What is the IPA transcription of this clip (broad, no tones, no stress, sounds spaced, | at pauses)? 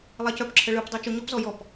lˠ a c œ p ǁʰ ə ɭ ɯ p dˤ œ t͡ʃ o ɲ ɔ p z ɔ j ɔ p